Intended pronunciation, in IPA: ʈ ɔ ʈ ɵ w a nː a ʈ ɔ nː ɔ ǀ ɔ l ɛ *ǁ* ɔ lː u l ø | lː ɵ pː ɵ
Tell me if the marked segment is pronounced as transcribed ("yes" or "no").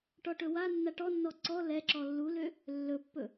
yes